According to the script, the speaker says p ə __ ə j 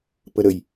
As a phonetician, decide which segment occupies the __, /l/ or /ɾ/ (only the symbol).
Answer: ɾ